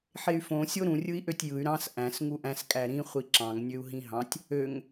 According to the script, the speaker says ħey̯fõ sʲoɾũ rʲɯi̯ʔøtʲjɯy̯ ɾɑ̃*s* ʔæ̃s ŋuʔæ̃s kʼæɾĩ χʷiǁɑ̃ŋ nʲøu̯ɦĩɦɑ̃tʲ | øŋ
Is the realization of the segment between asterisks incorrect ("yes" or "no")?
no